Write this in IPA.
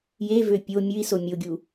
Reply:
jevø pʲo mʲʉi̯so mʲoɡʲu

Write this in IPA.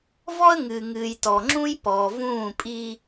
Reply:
vɔ˦ə̯ŋɨː˨ŋɨː˨jtɔ˨ ŋ͡ǁũ˦jpɔ˨ vũː˦˨ pʼi˦

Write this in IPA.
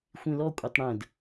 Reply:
xʷĩlɔ kʷʼɛtˤɽə̃d

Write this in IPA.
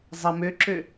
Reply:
zˤɐ møǁø

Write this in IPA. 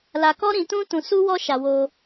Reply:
la˧ kɔ˦ ɾĩ˧tũ˦ tũ˧su˦wɔ˦ʃa˧ wo˧

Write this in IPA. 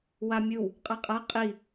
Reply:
wamʲɯw | qʼaqʼa qʼi

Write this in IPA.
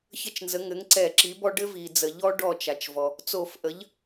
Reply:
çə˥˩t͡ʃnzə˩˥ ŋɘ˩˥ŋǀɛ˧˩˧ǁi˩˥bɔ˦ ɖɘ˦vi˩d͡zə˩ʎɔ˦ ɖɔ˥˩t͡ʃa˩t͡ʃvɔ˩ | t͡so˧˩˧fʔə˩˥ʎ

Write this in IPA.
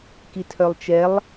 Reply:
kitʰœlˠt͡ʃɛlˠ

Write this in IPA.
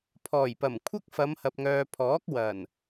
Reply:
pʰɔː˨˩jpɐ˨˩m kʷʰɐ˥k̚fɐ˨˧mhɐ˨p̚ŋœː˨ pʰɔː˨˥k̚wɐ˨˩n

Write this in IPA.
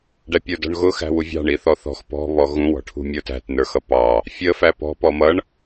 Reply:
ɖæpʲə˞dɔ̤ɳɣʊ xæ̤wuvʲɑ̤ ɳiθɔθɔ̤x pɔ̤ βɔɣũ wɔ̤ʈʰṳmʲə˞tæ̤t nə˞xʌpɑ | fʲə fæpɔ̤ pɔmʌɳ

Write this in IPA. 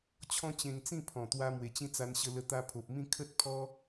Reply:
t͡ɕʰɔ̃˦t͡ɕẽ˧ŋt͡sĩ˥˧pʰɔ̃˨˩ t̪wa˧ mwe˨˩t͡ɕĩ˥˧t͡sa˧n ɕə˧lə˧t̪a˧ pʰo˨p̚mĩ˥˧ kʰə˦t̚pʰɔ˦

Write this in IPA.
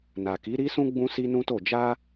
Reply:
na˨ki˨˦ɾi˦sũ˦ ɡ͡bũ˦si˦nũ˦to˦˨ d͡ʒa˧

